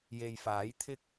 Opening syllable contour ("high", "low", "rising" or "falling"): low